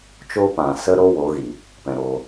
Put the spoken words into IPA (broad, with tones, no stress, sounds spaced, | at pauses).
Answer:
t͡ʃ o˧ p ã˨ s ə˧ ɾ o˦ w o˨˦ ɣ i˨ | p ɛ̃˧ ɾ o˧